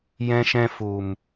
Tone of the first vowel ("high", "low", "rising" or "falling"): high